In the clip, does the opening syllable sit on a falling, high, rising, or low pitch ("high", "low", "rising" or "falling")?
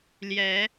rising